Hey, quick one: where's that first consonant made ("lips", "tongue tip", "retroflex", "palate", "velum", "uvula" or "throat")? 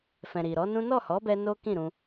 lips